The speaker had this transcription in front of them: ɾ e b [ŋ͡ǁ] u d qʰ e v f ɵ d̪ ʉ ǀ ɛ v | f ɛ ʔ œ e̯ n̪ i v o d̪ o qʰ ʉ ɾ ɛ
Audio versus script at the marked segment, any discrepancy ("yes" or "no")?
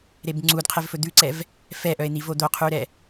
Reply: yes